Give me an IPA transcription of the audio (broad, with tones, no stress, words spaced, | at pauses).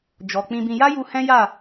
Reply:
d͡ʒɔ˨ k͡pĩ˧bĩ˧ ja˦ju˧ hɛ̃˦ja˦˨